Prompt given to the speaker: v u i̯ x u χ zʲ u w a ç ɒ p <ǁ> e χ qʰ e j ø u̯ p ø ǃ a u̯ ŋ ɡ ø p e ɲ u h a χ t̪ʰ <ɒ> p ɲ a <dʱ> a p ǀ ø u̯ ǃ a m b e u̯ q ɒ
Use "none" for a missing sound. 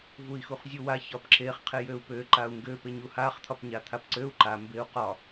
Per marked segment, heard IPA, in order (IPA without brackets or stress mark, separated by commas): ǁ, ɒ, t̪ʰ